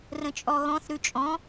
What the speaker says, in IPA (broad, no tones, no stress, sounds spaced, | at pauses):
r ə̃ t͡ʃʼ ɔ ɣ ɔ̃ θ ɾ ʉ t͡ʃʼ ɔ̃